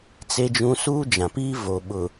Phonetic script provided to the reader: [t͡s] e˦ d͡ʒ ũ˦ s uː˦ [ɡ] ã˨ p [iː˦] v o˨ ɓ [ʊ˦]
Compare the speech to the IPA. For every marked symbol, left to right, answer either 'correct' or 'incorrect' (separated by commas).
correct, incorrect, correct, incorrect